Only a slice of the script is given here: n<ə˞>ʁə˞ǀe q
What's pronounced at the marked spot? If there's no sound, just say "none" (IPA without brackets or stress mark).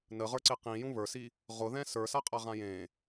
ə